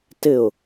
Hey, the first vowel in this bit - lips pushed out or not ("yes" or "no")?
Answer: no